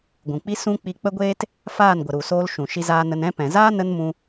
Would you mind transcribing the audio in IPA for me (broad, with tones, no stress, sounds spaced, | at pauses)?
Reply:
ɡʷ ũ˨ k͡p i˦ s ũ˦ k͡p i˧ k͡p ə˦ ɡʷ eː˦ t | f aː˦˨ n ɡʷ ə˨ ɾ u˨ s oː˧ l ʃ ũ˨ ʃ i˧ z aː˧ n ə˧ n ɛ̃˧ p ɛ̃˨ z aː˦ n ə˦ n m ũ˧